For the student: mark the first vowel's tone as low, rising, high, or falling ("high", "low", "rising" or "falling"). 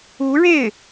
rising